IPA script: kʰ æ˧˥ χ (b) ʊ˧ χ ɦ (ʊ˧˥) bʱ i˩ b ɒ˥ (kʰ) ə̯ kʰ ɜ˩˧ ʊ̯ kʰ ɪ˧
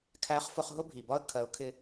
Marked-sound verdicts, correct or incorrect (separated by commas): incorrect, incorrect, incorrect